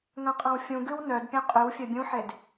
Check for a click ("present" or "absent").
absent